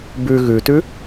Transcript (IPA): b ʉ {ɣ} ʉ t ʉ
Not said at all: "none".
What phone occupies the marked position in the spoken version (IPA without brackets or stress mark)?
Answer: ɣ